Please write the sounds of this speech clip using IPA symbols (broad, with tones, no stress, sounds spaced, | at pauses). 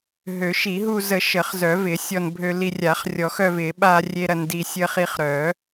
ɦ ø˨˩˦ ʃ i˨˩˦ ɦ u˧ z ə˨˩˦ ʃ ə˨˩˦ χ z œ˨˩˦ v ɪ˨˩˦ sʲ ɔ˧ n bʱ ø˧ l i˧ rʲ a˨˩˦ χ rʲ ɔ˨˩˦ x œ˧ v ɪ˨˩˦ ɓ a˧ rʲ e˧ ɾ ɐ˧ n d i˧ sʲ ə˧ χ i˧ χ ɾ œ˨˩˦